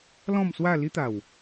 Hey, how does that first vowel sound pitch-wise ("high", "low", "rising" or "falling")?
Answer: falling